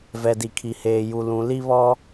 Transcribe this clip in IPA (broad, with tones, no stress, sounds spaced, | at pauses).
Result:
v ɛ˨ d i˨ kʰ i˨ h eː˨ j u˨ l ũ˨ l i˦ β ɔ˦